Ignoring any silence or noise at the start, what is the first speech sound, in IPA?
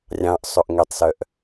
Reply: rʲ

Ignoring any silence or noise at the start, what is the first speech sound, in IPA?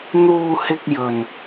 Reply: n̪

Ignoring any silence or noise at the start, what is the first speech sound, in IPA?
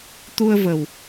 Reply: t̪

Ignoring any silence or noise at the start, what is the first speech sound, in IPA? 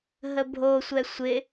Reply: ɦ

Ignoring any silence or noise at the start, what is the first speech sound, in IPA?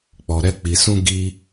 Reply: k͡p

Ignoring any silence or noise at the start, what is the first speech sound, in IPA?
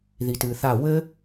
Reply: ð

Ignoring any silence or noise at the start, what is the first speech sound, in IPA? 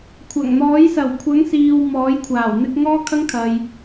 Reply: kʷʰ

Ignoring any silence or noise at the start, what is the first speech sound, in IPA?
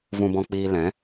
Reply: v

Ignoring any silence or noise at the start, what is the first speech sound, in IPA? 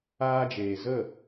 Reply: aː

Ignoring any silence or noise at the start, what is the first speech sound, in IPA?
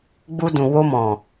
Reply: ɡ͡b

